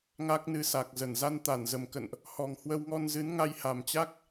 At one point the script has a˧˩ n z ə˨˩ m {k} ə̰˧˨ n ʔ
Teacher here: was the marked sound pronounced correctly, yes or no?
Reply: yes